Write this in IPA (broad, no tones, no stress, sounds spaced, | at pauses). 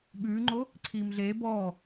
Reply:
ɓ ʉː ŋ͡ǃ o | ǀʰ iː m ɮ eː b ɔː